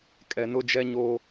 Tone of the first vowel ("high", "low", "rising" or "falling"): low